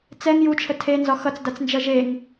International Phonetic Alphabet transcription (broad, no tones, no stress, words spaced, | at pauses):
t͡sɛŋ jut͡ʃʰə tʰenzɒ xʌt͡sdat͡snd͡ʒʌ ʒeŋ